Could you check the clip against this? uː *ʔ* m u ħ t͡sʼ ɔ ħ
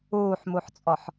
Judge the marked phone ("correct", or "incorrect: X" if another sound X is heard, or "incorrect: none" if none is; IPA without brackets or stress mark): incorrect: ħ